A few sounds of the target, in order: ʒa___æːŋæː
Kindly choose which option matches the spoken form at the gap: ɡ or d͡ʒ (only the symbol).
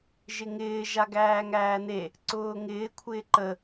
ɡ